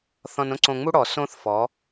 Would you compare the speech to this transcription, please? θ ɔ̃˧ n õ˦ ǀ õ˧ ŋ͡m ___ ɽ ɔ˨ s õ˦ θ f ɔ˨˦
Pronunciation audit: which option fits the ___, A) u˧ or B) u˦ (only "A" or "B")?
B